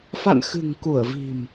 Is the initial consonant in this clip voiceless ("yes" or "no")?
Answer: yes